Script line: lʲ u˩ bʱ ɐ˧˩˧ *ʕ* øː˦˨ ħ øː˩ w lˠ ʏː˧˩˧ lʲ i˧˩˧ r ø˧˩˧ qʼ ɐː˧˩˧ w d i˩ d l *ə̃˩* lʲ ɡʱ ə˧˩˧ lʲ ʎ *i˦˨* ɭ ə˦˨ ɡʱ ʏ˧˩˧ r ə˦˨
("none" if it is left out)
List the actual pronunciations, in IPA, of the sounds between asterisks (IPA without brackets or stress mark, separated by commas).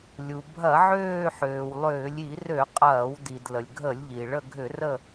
ʕ, ə˩, i˩